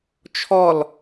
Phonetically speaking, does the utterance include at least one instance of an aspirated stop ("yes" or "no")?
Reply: yes